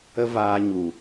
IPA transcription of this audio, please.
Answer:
ə˦ v aː˧ ɲ u˨

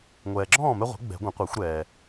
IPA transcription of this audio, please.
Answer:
ŋʷ ɛː˨ ɡ͡ǁ ɔ̃ː˥˨ m ɛ˦ ʁʷ ɛ̤˩˥ ɡ͡b ɛ̤˨˩˦ ɡʷ ə̃˩˥ qʷ ɛ˨˩˦ xʷ ɾ ɛː˨

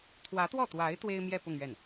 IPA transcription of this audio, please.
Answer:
t̪ʰ w ä˧˥ t̪ w ɔ˥˩ t̪ w a˧˥ ɪ̯ t̪ w e˥ ɪ̯ m j ɛ˥˧ p ʊ˥˧ ŋ ɥ ɛ˥˩ n

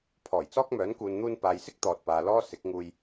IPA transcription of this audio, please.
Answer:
pʰ ɔː˨˩ j t͡s ɔː˥ k̚ m œː˨˥ n k uː˨ n n̪ uː˧ n p aː˨ j s ɪ˥ k̚ t̪ ɔː˨ t̚ p aː˨ l ɔː˥ s ɪ˨˥ k̚ ŋ uː˧ j

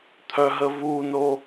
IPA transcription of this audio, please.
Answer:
t̪ʰ œ ɦ ə v u n o

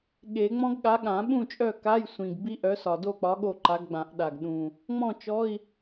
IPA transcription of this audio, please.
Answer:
ɠ e˨˩˦ ŋ͡m ɔ̃˦˥ ɡ ɠ a˨˥ ɠ ã˨˩˦ ɓ ũ˥˨ t͡ʃʼ œ˥˨ k a˧˥˧ j sʷ ĩ˨˩ ɡ b i˦˥ ʔ œ˨˥ s ɒ˨˩ d o˥˨ k͡p ɒ˨˥ ɠ o˥˨ ǃ a˨˥ ɡ ɡ͡b ã˨˩˦ ʔ ɗ a˨˩ ɡ ɗ ũ˨˩ | ŋ͡m ɔ̃˥˨ t͡ʃ ɔ˧˥˧ i̯

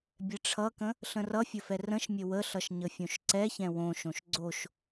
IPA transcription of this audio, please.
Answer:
bʲ ɛ ʈ͡ʂʰ ʌ k ə̃ | ɬ ə̃ r ʌ fʲ ə f ɛ r ə̃ ʃ mʲ ə w ə ɬ ʌ ʃ ɲ ə fʲ õ ʃ ǀ ɛ ç ɛ̃ w õ ʃ õ ʃ ɡ͡ǀ o ʃ

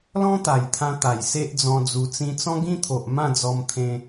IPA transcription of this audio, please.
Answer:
l ɔ̃˦ t̪ a˨˩ j t̪ʰ ã˧ t̪ a˨˩ j s e˦ ʔ d͡z ɔ̃˧ d͡z u˧ t͡s ĩ˧ t͡s ɔ̃˦ ɡ ĩ˦ t̪ʰ o˨ ʔ m ã˥˧ d͡z ɔ˧ m t̪ʰ ẽ˧

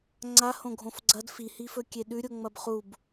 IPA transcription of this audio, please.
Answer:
ŋ͡ǀ a h õ ɡʱ õ f ɡ͡ǀ ɐ d f i h i f ɵ kʲ e ɗ ʉ ɾʲ o ŋ͡m ɐ b χ u b

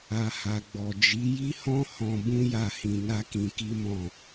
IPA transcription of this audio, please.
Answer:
a˨ h a˨ ɡ͡b ɔ˨ d͡ʒ i˨˦ j i˦ h ɔ̃˦ h ɔ̃˧ b ũ˦ j a˦˨ h ĩ˧ n a˦ k ĩ˧ k i˦ m ɔ̃˦˨

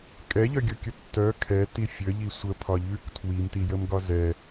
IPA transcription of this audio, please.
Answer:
kʼ ɛ ʎ œ ɡʲ o kʲ ə tː œ kʰ ɛ t i fʲ ə ʎ i sʷ ə pʰ ɒ ʎ ʉ k tʰ w i m t i j ə m ɡ ɒ z ɛ

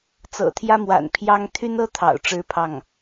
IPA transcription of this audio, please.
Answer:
t͡s ɤ̰˨˩ t̪ʰ j ä˥ m w a̰˨˩ n pʰ j ɑ˥ ŋ t̪ʰ y˥ n ɤ˥ t̪ʰ ɑ̰˨˩ ʊ̯ ʈ͡ʂ ɻ̩˥ pʰ ɑ˥˩ ŋ

